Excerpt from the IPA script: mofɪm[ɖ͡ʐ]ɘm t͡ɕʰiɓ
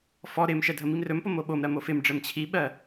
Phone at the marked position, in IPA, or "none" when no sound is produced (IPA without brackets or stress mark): ɖ͡ʐ